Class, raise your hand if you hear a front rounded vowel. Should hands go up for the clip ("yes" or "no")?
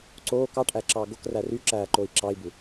yes